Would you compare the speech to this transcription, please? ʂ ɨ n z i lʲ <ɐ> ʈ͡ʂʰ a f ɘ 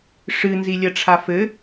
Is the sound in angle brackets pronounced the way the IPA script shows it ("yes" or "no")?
yes